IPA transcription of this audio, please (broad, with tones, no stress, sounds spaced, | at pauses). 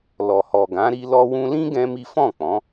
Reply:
l ɔ˨ h ɔ˨ ɡ ã˨˦ ɾ i˧ l ɔ˧ w ũ˧ l ĩ˦ ɡ ɛ̃˦ m i˦ f ɔ̃˦˨ k͡p ɔ̃˨˦